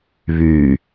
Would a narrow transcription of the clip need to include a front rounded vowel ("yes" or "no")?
yes